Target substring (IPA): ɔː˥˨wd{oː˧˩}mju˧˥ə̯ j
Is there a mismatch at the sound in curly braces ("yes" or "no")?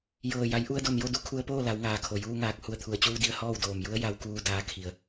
no